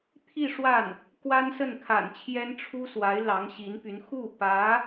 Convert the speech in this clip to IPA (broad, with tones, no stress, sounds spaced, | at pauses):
t̪ʰ i˥˧ ʂ w a˥˩ n | k w a˥ n s ə˥˩ n kʰ a̰˨˩ n t͡ɕʰ j ɛ˥ n ʈ͡ʂʰ u˥ s w a˧˥ ɪ̯ l ɑ˧˥ ŋ ɕ i˧˥ n p y˧˥ n x u˥˩ p ä˧˥